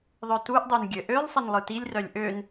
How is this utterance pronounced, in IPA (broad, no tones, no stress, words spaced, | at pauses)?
ðˤœtuʔdˤøn ɡʲɘ ʔølˠsˤɘn lˠɯtilʲrœlʲ ʔøn